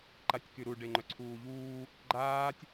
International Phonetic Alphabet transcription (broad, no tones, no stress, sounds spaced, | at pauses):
ǃ a tʲ k y ɾ u ɖ e ŋ͡ǃ œ ǀʰ uː ʎ uː | ɡ͡ǃ aː tʲ